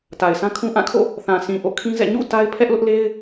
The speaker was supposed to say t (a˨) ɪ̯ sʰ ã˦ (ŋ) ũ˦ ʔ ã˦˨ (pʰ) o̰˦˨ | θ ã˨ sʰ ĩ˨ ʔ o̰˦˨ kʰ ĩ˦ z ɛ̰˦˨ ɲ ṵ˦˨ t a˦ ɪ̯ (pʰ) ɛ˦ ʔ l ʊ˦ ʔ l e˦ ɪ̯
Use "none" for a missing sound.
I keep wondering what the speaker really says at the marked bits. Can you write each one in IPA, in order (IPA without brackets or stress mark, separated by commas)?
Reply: a˨, kʰ, kʰ, pʰ